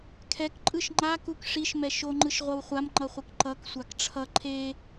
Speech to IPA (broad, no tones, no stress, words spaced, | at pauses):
kʰɛk ǃʼɯʃŋ͡ǃakuk ʂiʃmɛ ʃoŋ͡ǃɯʃ ʁʷʌwχʷamŋ͡ǃʌχʷɯk ǃʌk sʷakʈ͡ʂʰʌ ǃʰe